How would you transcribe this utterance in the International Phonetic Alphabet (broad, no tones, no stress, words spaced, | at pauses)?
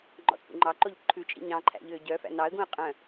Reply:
ŋ͡ǃɔ̰t͡sʼṵŋ͡ǃɑǃoʎ ǃʰʉt͡ʃʼḭ ɲɑ̃ǃʰæ̰ ʎøɟœfæ̰ nɑə̯ɡũə̯ qʼœ̃